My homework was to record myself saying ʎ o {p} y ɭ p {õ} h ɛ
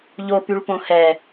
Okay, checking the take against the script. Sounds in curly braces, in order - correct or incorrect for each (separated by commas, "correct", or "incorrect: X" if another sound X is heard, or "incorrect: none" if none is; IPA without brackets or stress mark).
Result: correct, correct